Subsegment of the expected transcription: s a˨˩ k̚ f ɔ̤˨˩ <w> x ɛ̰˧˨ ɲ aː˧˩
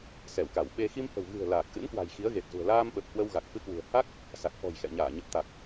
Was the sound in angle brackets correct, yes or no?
no